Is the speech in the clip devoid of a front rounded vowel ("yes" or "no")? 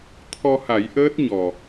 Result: yes